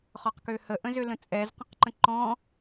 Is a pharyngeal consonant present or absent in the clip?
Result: absent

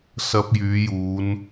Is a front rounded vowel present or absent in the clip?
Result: present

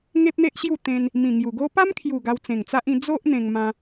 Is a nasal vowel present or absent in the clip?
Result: present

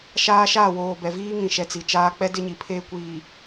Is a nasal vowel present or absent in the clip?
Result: present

